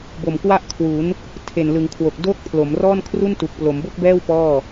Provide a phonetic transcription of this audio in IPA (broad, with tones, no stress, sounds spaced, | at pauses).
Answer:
b o˨˩ m k w a˥˩ ʔ kʰ w u˩˦ n | tʰ e˨˩ n l ɯ˩˦ ŋ kʰ w o˨˩ k̚ d oː˥˩ k̚ pʰ l o˩˦ m r ɔː˥˩ n kʰ r u˥˩ n t u˨˩ k̚ p l o˩˦ m b o˥˩ k̚ b ɛː˥˩ w p ɔː˥˩